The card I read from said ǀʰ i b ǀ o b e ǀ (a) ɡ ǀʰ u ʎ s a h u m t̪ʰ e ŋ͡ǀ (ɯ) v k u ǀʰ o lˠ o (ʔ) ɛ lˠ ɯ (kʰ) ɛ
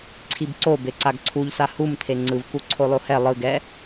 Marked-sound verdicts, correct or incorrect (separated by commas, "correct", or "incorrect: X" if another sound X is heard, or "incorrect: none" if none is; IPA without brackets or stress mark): correct, correct, incorrect: h, incorrect: ɡ